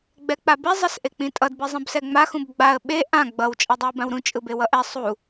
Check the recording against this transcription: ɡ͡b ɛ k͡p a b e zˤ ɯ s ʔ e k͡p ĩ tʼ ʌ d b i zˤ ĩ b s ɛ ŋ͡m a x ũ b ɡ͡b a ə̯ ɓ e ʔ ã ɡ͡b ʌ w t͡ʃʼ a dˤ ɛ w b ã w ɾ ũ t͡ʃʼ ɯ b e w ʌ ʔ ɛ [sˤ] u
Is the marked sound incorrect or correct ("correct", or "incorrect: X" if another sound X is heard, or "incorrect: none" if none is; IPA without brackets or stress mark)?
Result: correct